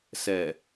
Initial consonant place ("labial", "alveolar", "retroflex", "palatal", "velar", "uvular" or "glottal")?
alveolar